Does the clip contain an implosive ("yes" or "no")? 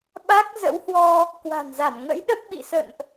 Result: yes